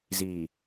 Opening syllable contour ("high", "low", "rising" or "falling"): low